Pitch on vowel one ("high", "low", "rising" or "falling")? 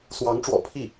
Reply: rising